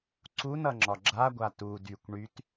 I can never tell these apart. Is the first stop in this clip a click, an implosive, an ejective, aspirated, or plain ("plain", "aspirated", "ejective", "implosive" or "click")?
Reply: click